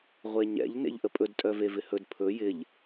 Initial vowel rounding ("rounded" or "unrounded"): unrounded